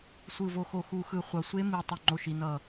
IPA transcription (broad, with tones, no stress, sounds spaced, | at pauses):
sʷ ɯ˨˩ v o˨˩ x o˨˩ x u˨˩ x ɯ˨˩ χʷ ʌ˨˩ sʷ e˦˥ m i˨˩ tˤ u˨˩ ŋ͡ǃ o˨˩ ʃ i˨˩ n ʌ˨˩